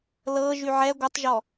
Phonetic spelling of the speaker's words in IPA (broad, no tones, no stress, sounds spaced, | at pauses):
l ɤ ʒ y ʕ ɛ ɡʷ ə tˤ ʒ ɔ